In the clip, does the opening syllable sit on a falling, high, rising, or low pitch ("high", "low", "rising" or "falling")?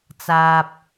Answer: low